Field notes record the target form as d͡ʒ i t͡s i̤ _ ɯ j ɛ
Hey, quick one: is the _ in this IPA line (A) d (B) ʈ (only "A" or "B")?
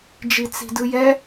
A